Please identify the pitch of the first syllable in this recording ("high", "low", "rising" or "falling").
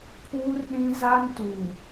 high